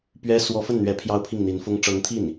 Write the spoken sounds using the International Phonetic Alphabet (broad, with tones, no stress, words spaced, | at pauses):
pɥɛ˥ swɔ˧˥fə˥˩nn̪ɥɛ˧˥ pʰjɑ˥ʊ̯pʰi˥˩ŋn̪i˧˥nfʊ˥ŋ ʈ͡ʂɤ˧˥ŋt̪ʰi˥˩n